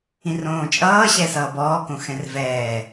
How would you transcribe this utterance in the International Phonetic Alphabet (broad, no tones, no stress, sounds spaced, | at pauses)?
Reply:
ĩ r õː t͡ʃʼ ʌː ɕ ɛ s ʌː b ɔː k õ x ɛ̃ r v ɛː